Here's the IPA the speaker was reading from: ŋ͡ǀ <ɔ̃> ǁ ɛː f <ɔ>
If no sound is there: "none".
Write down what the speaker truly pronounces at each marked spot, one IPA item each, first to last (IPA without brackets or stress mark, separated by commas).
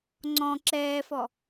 ɔ̃, ɔ